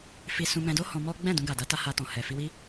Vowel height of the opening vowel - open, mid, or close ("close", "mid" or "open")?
close